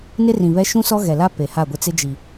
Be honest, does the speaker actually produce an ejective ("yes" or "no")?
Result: no